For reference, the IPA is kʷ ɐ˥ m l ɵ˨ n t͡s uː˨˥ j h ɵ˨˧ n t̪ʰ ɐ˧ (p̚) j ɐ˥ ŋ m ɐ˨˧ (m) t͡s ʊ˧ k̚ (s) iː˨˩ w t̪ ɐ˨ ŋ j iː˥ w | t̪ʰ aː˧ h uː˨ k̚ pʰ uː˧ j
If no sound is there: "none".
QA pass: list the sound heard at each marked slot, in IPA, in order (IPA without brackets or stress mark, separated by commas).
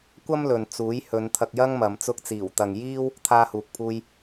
k̚, m, t͡s